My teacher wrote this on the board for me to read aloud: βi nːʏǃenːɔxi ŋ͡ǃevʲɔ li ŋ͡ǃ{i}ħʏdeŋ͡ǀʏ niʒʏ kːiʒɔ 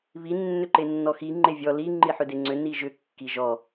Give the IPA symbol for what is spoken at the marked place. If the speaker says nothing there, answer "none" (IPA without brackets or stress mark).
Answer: i